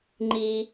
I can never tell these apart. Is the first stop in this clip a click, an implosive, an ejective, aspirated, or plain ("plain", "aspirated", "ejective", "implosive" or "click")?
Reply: click